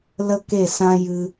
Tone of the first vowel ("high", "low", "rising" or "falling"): high